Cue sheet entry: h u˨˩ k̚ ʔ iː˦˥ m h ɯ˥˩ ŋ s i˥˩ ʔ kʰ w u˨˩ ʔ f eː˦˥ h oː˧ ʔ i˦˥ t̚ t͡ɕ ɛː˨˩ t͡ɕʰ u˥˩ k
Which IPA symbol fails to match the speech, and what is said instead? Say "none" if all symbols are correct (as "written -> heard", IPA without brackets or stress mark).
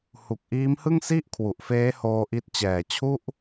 k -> ʔ